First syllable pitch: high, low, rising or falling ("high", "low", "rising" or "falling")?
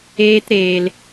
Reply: high